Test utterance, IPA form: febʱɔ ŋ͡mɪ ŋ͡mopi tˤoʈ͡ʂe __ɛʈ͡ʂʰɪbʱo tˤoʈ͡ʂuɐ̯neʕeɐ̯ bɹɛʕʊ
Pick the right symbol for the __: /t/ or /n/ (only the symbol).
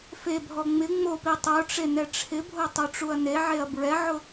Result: n